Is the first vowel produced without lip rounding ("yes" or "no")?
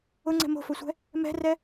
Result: no